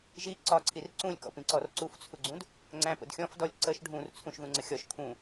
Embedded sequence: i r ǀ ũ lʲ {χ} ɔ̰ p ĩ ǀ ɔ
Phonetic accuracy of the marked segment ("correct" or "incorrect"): incorrect